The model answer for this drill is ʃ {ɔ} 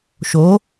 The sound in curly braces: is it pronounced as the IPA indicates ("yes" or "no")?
no